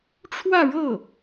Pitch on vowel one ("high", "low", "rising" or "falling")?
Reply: falling